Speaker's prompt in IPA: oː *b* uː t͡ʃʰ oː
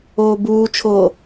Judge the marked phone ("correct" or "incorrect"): correct